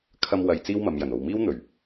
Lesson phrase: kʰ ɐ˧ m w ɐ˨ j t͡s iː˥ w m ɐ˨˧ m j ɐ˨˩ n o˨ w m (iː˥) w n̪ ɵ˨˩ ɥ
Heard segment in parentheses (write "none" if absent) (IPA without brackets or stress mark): iː˥